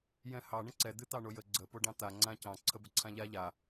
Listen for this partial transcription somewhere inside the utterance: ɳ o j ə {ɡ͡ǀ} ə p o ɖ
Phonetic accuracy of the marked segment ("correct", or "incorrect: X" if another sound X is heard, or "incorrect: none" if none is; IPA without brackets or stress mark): correct